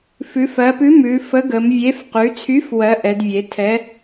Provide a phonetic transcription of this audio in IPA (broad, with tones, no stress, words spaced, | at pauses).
fʉ˩˧fɜ˩˧pʉ˨˥ mʉ˩˧fə˨˥ɡə˩˧mvʲe˨˥f qʉ˩˧t͡sʰy˨˥f wɜ˨˥ʔɛ˩˧dvʲe˩˧ tʰɛ˨˥